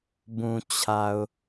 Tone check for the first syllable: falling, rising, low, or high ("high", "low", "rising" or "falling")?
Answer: low